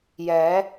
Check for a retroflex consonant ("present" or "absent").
absent